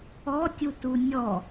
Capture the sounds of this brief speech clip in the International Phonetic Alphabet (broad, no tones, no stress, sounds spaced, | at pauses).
ɔ tʲ u t u nʲ ɔ